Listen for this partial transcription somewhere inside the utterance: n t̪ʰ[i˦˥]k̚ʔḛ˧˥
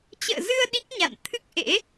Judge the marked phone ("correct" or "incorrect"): incorrect